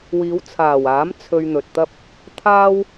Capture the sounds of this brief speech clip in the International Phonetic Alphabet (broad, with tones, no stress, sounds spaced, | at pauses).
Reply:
w iː˨˧ w t͡sʰ aː˨˩ w aː˨˥ m t͡sʰ ɵ˧ ɥ n̪ ɵ˨ t̚ t̪ ɐ˥ p̚ | t̪ʰ aː˥ w